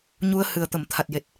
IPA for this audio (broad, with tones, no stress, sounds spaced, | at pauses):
ɲ u˧ ə̯ h ɨ˨˩ ə̯ t̪ ə˨˩˨ m t̪ʰ a˨˩ t̚ j e˨˩ t̚